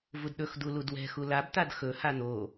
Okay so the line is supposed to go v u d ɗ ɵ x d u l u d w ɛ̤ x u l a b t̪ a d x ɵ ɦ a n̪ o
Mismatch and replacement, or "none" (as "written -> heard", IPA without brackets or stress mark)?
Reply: ɦ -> h